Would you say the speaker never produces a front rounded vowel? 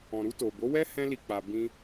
yes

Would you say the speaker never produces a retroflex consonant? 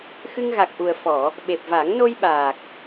yes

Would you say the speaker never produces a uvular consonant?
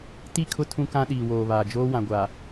yes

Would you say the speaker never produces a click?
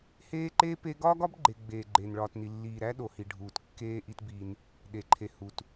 no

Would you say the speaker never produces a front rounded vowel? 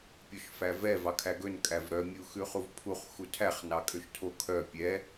no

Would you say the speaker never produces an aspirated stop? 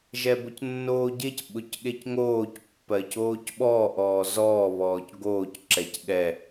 yes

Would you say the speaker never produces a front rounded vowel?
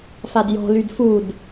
no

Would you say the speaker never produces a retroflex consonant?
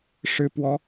no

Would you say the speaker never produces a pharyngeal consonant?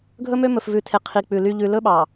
yes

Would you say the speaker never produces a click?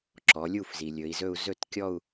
no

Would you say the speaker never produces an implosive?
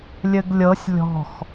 yes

